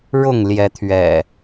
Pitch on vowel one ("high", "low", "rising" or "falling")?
falling